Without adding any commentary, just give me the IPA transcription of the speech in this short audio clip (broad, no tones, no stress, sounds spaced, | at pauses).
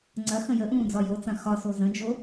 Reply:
ŋ͡ǀ ɐ x ə̃ j ə ʔ ũː d͡z ɒ j o t͡s ɐ̃ x ɒ s o z ə̃ d͡ʒ o